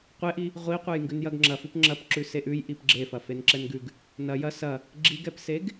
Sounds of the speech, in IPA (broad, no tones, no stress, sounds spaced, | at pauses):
qʷ e ʔ i | ʁʷ i qʷ e j ŋ ɡ ʉ n j ɐ ɡ ŋ͡ǁ ɐ f ʉ p ŋ͡ǁ ɐ p ǁ ʉ s e ʔ ʉ j ʔ i p ɡ͡ǁ e f ɐ f e n ǁ ɛ n ɡ ʉ ɡ | n ɐ j ɐ s ɐ | ɡ͡ǁ i ɡ ɛ p s e ɡ